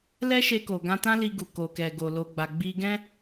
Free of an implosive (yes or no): yes